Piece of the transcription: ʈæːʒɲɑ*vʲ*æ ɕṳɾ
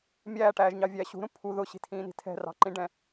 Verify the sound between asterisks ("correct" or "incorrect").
correct